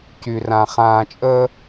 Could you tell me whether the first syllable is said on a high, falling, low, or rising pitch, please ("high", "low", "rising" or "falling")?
low